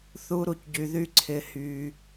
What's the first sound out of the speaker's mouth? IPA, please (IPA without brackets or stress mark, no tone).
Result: θ